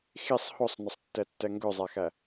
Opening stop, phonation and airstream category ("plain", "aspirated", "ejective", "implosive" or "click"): plain